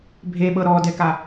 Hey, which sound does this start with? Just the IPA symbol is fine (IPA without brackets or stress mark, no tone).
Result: bʱ